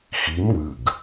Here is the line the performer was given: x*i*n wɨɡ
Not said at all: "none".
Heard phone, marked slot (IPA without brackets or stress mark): i